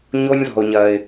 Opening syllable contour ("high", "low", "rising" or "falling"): high